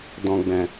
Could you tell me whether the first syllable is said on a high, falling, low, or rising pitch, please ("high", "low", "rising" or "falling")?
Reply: low